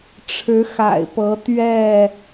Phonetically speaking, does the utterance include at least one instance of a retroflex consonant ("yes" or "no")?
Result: yes